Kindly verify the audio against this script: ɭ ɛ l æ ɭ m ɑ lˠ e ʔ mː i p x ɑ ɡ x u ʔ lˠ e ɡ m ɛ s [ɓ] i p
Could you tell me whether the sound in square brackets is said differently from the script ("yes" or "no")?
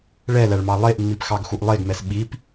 no